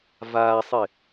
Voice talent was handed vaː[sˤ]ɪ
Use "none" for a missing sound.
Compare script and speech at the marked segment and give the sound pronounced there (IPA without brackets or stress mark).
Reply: sˤ